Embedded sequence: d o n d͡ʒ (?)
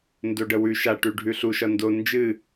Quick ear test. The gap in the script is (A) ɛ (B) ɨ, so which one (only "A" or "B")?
B